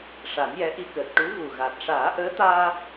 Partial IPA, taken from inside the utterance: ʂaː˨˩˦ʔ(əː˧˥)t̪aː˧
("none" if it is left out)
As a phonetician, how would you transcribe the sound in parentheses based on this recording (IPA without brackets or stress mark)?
əː˧˥